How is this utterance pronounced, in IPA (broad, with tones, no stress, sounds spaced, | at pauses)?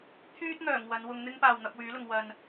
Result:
t̪ʰ yː˥ t̚ ŋ œː˨˩ ŋ w ɐ˨˧ n w ʊ˧ ŋ n̪ ɪ˥ ŋ p aː˨ w n̪ ɐ˧ p̚ w yː˨˥ l ʊ˨ ŋ w ɐ˨ n